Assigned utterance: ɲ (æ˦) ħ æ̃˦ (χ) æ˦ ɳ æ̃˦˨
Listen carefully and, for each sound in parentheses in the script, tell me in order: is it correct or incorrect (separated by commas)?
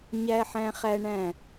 correct, correct